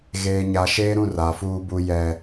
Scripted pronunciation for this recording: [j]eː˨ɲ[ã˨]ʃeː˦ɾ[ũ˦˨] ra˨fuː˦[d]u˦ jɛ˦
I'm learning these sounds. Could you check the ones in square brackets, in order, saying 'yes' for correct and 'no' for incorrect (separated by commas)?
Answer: no, no, yes, no